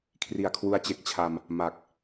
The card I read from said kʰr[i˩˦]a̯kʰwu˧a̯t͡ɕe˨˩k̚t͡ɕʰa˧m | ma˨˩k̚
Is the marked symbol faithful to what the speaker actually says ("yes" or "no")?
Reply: no